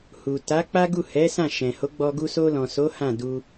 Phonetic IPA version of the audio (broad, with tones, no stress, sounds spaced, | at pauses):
h u˨ t a˨˦ k͡p a˦ ɡ u˦˨ h ɛ˨˦ s ã˦˨ ʃ ɛ̃˨ h o˨˦ ɡ͡b ɔ˧ ɡ u˧ s o˧ l ɔ̃˨ s o˨˦ h ã˦˨ d u˧